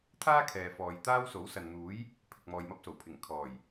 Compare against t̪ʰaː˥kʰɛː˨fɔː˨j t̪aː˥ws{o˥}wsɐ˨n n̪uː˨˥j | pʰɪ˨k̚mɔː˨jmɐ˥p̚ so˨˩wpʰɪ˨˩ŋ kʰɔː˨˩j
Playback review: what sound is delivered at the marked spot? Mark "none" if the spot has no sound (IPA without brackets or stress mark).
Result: o˨˥